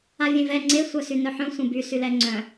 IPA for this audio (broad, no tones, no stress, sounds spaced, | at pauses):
a vʲ ẽ v ɛ ŋ͡ǀ e sʷ œ s y n œ ħ œ̃ sʷ ẽ b y s y l ɛ ŋ͡ǀ œ̃